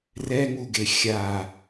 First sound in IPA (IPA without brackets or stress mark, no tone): r